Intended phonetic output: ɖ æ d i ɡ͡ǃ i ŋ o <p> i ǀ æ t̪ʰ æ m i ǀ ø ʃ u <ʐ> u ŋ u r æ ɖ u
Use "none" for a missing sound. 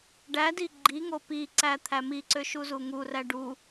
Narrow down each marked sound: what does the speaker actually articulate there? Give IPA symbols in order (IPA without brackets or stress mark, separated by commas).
p, z